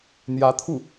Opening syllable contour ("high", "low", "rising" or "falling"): rising